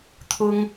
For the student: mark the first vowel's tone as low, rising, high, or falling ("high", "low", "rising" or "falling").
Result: high